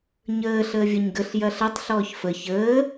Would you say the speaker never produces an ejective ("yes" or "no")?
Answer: yes